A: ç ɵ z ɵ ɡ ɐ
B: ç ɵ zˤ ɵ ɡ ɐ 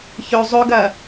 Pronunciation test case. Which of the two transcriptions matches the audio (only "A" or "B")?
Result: B